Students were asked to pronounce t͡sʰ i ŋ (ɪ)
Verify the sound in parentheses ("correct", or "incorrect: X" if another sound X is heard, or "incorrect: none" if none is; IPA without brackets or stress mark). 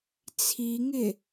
correct